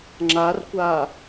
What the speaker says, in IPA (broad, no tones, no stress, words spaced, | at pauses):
ŋ͡ǁarkʷa